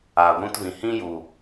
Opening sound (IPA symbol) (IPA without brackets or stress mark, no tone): aː